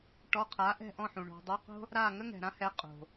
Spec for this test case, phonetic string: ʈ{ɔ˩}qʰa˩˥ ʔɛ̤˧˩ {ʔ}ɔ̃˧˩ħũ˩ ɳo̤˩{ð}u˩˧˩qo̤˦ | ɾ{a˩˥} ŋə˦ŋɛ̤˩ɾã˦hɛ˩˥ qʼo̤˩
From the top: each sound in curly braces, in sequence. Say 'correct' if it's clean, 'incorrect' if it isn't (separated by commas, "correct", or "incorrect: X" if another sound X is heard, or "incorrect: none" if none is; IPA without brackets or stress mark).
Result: incorrect: ɔ˩˧˩, correct, incorrect: dˤ, incorrect: a˧˩